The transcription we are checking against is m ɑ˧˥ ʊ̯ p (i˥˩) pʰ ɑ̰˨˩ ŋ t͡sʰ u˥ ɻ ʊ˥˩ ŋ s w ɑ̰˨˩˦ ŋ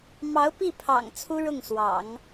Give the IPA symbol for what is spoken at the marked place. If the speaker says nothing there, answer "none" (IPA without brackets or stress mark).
i˥˩